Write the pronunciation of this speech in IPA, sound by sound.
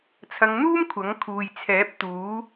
t͡sʰ ɐ˨˧ ŋ n̪ uː˥ m kʷʰ ɐ˨˥ ŋ kʰ uː˨ j t͡sʰ ɛː˨˥ p̚ t̪ uː˨˥

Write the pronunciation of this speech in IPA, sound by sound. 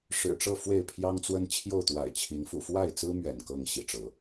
ʂ ɻ̩˨˩ ʈ͡ʂ ɤ˥˨ f w e˥˨ ɪ̯ pʰ j ɑ˦ ŋ t͡s w ə˦ n t͡ɕʰ j o˥˨ ʊ̯ t̪ w a̰˨˩ ɪ̯ t͡ɕʰ i˨˦ ŋ f ṵ˨˩ f w a˥˨ ɪ̯ t͡s ɹ̩˦ m ɥ ɛ̰˨˩ n k ɤ˥˨ ŋ ɕ ḭ˨˩ ʈ͡ʂ ɤ˨˦

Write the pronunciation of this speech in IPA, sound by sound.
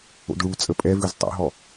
o̰ d ɭ u t͡sʼ ə pʼ ɛ v ʉ z tˤ o̰ ɦ ɔ

